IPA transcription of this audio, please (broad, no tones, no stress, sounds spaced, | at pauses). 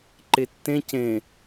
ǃ e tː ẽ c ẽ